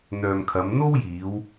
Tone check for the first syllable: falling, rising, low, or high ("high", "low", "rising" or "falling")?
low